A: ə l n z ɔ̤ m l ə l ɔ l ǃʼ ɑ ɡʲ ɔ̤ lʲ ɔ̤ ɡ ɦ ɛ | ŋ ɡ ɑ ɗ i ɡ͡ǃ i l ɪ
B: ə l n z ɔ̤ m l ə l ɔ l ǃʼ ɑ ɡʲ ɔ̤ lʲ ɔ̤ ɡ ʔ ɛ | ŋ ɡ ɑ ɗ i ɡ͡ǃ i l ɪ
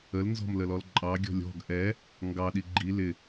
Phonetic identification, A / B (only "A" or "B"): B